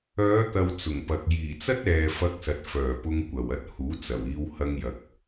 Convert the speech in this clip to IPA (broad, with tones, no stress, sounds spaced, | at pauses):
œː˨˧ t̪ ɐ˨ w t͡s ʊ˨˩ ŋ p ɐ˨ k̚ j iː˨˩ t͡s ɐ˥ t̚ ɛː˨ f ɐ˧ k̚ s ɐ˨ t̚ f œː˨˩ p ʊ˧ ŋ kʷ ɐ˨˩ w ɐ˧ t̚ h uː˨˥ t͡s ɐ˨˩ w iː˧ w h ɐ˧ ŋ j ɐ˨˥ k̚